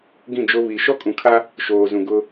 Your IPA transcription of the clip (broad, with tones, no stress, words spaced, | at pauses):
ɡĩ˦˨d͡ʒo˦ βi˨ ʃɔ˦kʼũ˨kʰa˦ | ʃoː˨zũ˨ ɡʊ˦